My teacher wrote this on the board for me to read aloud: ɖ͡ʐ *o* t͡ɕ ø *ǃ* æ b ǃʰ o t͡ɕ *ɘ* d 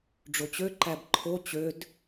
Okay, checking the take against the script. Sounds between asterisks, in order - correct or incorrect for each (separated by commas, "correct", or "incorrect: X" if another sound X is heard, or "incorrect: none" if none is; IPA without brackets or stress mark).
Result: correct, correct, incorrect: ø